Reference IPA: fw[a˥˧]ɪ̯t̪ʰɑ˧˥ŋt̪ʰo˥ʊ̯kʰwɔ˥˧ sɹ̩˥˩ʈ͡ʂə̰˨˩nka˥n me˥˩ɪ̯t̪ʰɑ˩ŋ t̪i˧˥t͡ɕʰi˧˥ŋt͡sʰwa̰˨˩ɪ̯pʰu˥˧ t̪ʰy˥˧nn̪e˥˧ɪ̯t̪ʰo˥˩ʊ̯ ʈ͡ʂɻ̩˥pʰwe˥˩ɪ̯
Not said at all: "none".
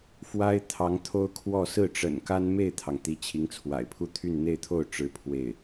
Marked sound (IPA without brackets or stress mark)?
a˥